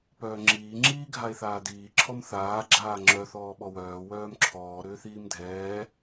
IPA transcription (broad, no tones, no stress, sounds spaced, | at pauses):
p œː ŋ͡ǁ iː ŋ͡ǁ iː ɡʱ a e̯ θ aː d iː ǁʰ ɔ m θ aː ɡ͡ǁ aː ŋ͡ǁ œ θ ɔː ɓ ɔ w œː w œː m ǁʰ ɔː ɾ ʏː θ iː m dʱ ɛː